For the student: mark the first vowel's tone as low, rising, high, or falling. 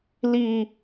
high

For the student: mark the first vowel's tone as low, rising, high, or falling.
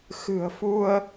low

